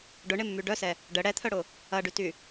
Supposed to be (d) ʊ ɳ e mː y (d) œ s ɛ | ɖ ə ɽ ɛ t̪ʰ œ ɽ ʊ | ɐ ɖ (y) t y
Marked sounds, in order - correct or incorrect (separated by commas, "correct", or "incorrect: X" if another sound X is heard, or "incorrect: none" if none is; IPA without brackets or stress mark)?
incorrect: ɖ, incorrect: ɖ, correct